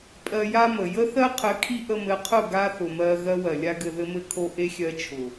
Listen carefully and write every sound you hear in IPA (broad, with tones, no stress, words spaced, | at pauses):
pʼɜ˧ja˦mə˨ jə˦θɜ˦qʰɘ˨˦ kʰi˦ʔə˧mɘ˨˦qʰʊ˦˨ ɡa˦θʊ˨mɜ˧ ɣɜ˦wɜ˨lʲa˦ ɡɘ˧ðɘ˦mɘ˦kʰo˦ ʔe˦xʲɜ˧t͡ʃʰʊ˨